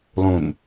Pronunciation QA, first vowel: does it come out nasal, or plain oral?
nasal